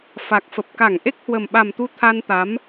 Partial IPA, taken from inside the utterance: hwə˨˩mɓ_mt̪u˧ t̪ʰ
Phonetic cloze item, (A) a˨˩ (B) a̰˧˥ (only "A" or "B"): A